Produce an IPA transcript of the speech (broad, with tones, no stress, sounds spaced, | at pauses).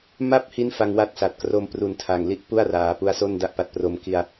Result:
m a˥˩ p̚ h i˦˥ n f a˧ ŋ w a˥˩ t̚ s a˨˩ t̚ k r o˧ m p r u˨˩ n tʰ a˨˩ ŋ l i˦˥ ʔ p u˥˩ a̯ r aː˩˦ p u˧ a̯ s o˥˩ n d a˥˩ ʔ p a˦˥ t̚ p r o˧ m k i˧ a̯